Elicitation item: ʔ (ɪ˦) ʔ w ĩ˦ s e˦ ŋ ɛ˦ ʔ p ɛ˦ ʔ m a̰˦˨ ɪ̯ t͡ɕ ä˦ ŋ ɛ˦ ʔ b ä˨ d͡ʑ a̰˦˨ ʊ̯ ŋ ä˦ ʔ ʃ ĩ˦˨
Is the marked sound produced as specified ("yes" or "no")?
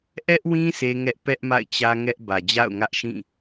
no